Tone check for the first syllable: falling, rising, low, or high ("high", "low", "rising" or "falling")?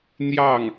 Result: falling